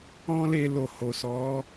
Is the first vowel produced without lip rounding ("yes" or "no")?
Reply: no